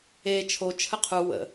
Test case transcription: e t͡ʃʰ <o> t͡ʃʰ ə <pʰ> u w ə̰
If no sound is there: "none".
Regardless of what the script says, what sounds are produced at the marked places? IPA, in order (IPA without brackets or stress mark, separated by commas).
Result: o, qʰ